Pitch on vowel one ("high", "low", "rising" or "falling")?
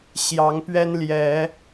rising